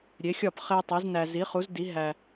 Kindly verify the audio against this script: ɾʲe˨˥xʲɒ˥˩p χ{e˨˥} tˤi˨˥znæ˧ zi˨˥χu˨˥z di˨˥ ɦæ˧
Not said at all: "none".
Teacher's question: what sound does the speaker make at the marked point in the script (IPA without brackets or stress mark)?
e˧